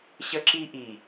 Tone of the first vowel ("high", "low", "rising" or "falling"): high